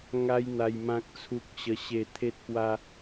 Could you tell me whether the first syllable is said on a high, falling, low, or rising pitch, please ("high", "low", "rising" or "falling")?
high